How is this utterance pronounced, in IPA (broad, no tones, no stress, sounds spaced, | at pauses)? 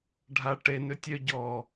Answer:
ɖʱ a ʈ e n ø tʲ œ ɟ ɔ